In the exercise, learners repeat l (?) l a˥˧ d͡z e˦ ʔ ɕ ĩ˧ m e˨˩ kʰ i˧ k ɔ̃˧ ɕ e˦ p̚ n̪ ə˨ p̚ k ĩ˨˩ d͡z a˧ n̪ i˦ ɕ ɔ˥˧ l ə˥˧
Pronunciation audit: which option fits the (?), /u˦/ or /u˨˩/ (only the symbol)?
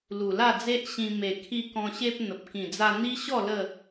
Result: u˨˩